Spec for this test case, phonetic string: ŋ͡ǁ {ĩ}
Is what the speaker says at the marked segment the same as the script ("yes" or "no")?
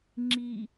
no